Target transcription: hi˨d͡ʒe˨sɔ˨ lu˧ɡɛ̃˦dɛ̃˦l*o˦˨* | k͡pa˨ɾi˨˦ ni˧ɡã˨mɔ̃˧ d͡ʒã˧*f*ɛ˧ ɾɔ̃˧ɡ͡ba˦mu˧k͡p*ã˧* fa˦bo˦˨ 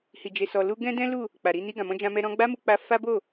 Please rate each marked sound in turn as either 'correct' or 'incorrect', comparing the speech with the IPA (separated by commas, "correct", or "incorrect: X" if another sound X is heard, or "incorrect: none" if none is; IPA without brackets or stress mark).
incorrect: u˦˨, incorrect: m, incorrect: a˧